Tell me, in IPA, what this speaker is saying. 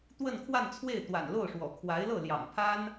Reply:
t̪ w ə˥˧ n kʰ w a˥˧ n t͡sʰ w e˥˩ ɪ̯ t̪ w a̰˨˩ n l o˥˩ ʊ̯ ʂ w ɔ̰˨˩ kʰ w a˧˥ ɪ̯ l ɤ˥˩ l j ɑ̰˨˩ ŋ pʰ a˥ n

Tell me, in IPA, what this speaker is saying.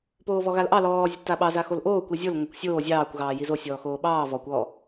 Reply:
p oː v ɔ ɣ a l ʔ ɑ l ɔː zʲ ə tː a ɓ ɑ z a x o l ʔ oː kʷ i zʲ o l ŋʷ a kʷ sʲ oː zʲ ɑː kʷ ɣ ɑː j i z o sʲ ɔː x oː ɓ ɑː v ɔ kʷ ɔ

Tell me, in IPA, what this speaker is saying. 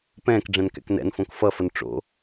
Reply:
p ɛ̃ː k ɖ͡ʐ ɛ̃ n k ɛ̰ k n ɛ̰ n f õ k f ʌ f ə n ʈ͡ʂ o̰

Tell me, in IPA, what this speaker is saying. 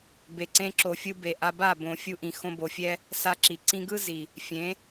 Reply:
b e˨ ǀ ẽ˧ ǁ o˨ fʲ ɯ˧ b e˨ ʔ a˧ b a˦˨ b õ˨ fʲ u˧ ʔ ĩ˨ x õ˧ b o˨ fʲ ɛ˦ | s a˧ ǁ i˨ ǀ ĩ˧ ɡ ɯ˦ z i˨ | fʲ ẽ˨˦

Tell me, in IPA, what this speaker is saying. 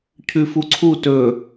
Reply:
cʰ ʉ f u ǀʰ u t ɵ

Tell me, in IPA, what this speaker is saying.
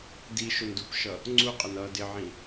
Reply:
d i ʃ ʊ n d u p ʃ ʌ | ŋ͡ǀ u qʼ ɪ n ʌ d ɪ ʕ ĩ

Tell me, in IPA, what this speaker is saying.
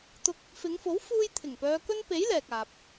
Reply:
t̪ ʊ˧ k̚ | f ɪ˨˧ ŋ f o˨˥ w f uː˧ j t̪ʰ ɪ˨˩ ŋ p œː˧ k ɵ˥ n p e˨˥ j l ɛː˨ k̚ aː˨ p̚

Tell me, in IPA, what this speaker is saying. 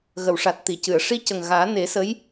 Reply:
ɣ ə˨˩˨ w ʂ a˨˩ t̚ t̪ i˨˩˨ c ɨ˨˩˨ ə̯ ʂ i˧ c ə˨˩ ŋ ɣ aː˨˩˦ n e˨˩˦ s ə˧˥ j

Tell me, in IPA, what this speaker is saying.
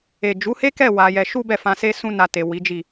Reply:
e˨ d͡ʒ u˨˦ h e˦ k ɛ˦˨ w a˧ j ɛ˧ ʃ u˦ b ɛ˦˨ f ã˧ s e˦ s ũ˦ n a˧ t e˨ w i˨˦ d͡ʒ i˦˨

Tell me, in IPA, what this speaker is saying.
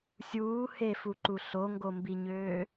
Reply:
sʲ uː h e f u ǃ u ɬ o ŋ ɡ o m b i ɲ øː

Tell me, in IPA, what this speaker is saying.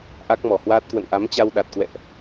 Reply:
ʔ a˦˥ k̚ m ɔ˧˩ h w aː˦˥ t̚ k w ə̰˧˨ n ʔ a˨˦ m t͡ɕ a˧ w ɗ a˨˩ t̚ k w ɛ̰˧˨ ʔ

